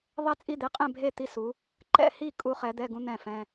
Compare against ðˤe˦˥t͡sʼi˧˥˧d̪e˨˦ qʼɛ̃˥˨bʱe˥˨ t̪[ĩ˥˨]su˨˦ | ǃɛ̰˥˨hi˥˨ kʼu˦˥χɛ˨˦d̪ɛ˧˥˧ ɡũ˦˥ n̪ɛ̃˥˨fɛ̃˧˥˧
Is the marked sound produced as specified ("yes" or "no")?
no